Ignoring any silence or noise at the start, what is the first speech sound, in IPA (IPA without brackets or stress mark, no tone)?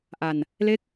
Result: ʔ